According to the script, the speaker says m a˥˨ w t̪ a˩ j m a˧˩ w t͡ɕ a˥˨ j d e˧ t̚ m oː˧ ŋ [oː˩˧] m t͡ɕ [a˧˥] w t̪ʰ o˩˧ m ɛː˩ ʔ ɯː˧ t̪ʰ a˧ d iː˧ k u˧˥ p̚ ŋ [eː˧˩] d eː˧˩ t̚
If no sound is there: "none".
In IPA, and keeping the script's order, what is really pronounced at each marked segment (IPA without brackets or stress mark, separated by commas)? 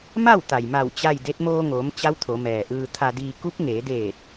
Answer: oː˩˧, a˧˥, eː˩˧